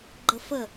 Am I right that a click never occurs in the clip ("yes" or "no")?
no